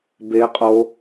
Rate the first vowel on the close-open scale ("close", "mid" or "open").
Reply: mid